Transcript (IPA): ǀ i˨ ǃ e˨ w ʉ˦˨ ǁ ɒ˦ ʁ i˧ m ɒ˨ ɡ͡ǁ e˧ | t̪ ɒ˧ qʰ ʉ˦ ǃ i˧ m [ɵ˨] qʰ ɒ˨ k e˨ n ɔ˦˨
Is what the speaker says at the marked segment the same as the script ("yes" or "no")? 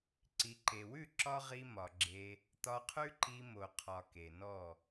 no